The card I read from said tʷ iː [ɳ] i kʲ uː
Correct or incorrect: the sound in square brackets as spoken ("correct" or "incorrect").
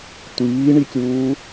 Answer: correct